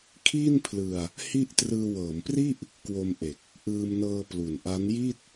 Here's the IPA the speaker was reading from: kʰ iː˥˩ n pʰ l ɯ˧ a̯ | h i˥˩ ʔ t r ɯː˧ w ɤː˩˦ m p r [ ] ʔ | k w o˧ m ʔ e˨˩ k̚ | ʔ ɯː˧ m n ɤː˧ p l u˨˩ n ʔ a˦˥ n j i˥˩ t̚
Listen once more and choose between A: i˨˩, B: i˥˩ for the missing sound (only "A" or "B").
B